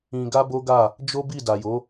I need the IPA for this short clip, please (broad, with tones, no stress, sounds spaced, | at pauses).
ĩ˧ ɡ a˦ b o˦ ɡ a˦˨ | d͡ʒ o˦ b i˦˨ d a˨ j o˨˦